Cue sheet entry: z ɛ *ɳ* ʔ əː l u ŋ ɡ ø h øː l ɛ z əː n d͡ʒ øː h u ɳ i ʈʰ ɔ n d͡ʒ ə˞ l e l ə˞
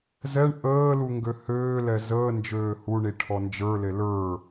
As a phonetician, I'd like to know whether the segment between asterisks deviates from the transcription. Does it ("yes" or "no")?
no